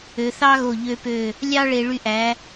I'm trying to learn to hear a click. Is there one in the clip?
no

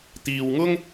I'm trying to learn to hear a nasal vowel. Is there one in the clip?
no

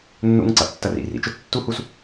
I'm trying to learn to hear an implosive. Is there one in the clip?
no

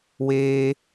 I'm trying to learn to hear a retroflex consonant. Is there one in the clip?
no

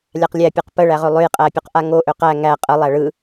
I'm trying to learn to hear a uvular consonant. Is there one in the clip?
yes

